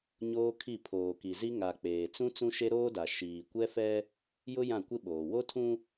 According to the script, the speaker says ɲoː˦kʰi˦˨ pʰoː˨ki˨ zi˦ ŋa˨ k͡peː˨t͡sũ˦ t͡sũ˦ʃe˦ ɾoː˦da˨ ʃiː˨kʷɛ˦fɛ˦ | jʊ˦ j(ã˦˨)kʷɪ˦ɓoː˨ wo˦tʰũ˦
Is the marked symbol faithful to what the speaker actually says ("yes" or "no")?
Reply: yes